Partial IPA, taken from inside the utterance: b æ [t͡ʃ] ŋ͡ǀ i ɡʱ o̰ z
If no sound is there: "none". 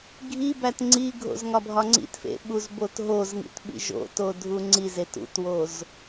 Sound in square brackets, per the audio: t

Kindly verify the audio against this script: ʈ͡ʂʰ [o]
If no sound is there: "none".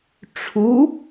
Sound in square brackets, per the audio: u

